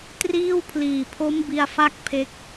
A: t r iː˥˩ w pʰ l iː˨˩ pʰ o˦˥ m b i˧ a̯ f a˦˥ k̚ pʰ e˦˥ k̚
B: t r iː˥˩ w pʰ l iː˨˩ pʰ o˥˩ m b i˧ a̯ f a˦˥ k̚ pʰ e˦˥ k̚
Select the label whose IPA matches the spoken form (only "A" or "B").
A